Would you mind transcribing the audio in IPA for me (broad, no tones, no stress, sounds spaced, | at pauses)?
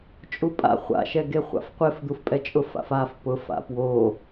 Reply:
t͡ʃʼ u pʼ a̰ χʷ a̰ ʃ ɛ ɡ e χʷ a̰ f qʷ e f d̪ u f pʼ ɛ t͡ʃʼ ʊ f a̰ f a f p ʊ f a̰ p w o